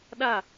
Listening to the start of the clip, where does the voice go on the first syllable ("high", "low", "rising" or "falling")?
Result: falling